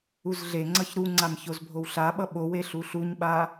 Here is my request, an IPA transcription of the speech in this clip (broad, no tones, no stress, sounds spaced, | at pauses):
u z ɮ e ŋ͡ǀ ʌ ç ɾ u ŋ͡ǀ a m ç o z bʱ o w ɬ a ɓ ʌ ɓ o w e ɬ u ɬ u ɲ ɓ a